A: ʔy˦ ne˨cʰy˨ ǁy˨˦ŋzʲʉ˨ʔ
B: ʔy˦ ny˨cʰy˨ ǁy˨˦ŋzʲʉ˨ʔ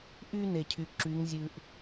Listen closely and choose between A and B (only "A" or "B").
A